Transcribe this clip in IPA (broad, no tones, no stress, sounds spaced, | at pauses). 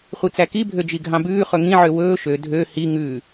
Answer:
χʷ i t͡s æ k i bʱ ø d͡ʒ i ɡʱ ɑ̃ b ʉː χ ɵ ŋ ĩ ʕ ø w ɵː ʃ ø dʱ ø h i ŋ ʉː